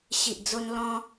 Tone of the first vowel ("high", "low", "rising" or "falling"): low